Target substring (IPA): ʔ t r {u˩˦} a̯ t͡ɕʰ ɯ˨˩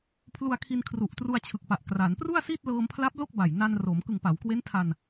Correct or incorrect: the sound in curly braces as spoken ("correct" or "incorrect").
incorrect